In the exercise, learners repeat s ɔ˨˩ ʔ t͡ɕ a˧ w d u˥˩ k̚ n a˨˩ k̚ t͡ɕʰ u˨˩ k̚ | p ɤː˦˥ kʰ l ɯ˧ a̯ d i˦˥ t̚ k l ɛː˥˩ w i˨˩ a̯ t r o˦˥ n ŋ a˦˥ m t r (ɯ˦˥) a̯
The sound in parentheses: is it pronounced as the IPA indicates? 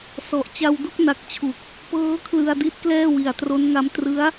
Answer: yes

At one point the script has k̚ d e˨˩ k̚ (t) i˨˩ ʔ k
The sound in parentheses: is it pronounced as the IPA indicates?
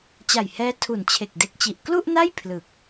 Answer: no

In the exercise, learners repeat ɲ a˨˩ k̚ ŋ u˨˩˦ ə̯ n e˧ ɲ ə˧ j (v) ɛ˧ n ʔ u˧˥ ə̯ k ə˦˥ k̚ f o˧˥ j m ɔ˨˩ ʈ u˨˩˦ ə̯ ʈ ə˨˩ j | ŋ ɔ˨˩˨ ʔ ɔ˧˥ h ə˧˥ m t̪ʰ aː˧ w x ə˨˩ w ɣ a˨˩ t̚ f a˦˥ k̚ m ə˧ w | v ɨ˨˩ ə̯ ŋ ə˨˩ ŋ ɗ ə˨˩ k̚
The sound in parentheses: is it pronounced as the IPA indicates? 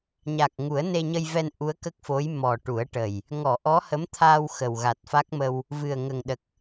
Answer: yes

